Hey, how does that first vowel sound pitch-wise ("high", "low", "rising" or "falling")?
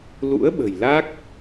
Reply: rising